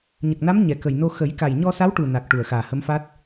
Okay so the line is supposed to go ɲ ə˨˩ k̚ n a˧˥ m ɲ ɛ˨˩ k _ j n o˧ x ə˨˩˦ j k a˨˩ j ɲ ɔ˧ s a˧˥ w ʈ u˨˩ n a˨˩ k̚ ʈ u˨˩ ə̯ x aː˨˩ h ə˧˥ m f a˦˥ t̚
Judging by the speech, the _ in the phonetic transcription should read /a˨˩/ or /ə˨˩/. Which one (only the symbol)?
ə˨˩